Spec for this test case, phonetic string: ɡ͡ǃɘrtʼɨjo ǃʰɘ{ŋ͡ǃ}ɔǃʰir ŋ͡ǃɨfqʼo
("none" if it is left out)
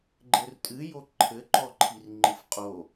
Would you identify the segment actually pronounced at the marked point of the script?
ǃ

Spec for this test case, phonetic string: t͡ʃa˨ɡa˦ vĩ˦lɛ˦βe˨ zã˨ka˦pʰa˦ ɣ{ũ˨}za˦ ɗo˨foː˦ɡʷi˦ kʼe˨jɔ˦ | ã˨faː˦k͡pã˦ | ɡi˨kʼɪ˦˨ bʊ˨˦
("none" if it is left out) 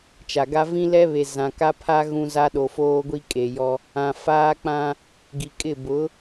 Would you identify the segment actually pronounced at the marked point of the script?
ũ˦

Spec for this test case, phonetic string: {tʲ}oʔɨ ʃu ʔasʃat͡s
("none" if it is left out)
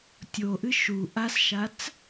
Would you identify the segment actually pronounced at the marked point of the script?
tʲ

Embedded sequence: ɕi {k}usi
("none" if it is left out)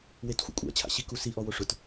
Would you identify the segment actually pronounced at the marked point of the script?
k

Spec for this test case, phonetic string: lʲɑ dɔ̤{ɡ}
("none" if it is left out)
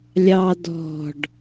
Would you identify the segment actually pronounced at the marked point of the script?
ɖ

